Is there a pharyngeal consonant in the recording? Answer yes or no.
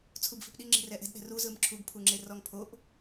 no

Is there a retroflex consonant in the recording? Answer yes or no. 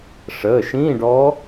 yes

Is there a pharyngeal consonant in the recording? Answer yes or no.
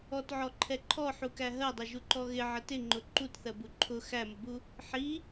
yes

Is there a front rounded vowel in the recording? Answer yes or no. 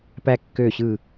yes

